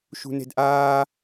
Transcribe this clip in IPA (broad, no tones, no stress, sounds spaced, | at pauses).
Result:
ʃ ṳ n e̤ d ʔ aː